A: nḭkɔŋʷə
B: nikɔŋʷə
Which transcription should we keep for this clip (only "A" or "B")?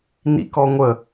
A